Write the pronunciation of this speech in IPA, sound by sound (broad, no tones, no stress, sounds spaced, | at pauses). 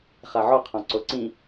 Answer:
χ a ʕ ɔ qʰ ɔ̃ ǀ o ǀ ĩ